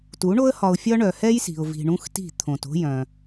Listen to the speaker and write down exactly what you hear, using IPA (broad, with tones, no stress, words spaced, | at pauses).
tu˨˦ɳo˦ə̯hɒ˧ʊ̯fʲɒ˦ ɳœ˨hɛ˦jsi̤˨ʊ̯vi̤˨ ɳũ˦xti̤˦˨ t̪ʰõ˨to̤˦ jœ̃˧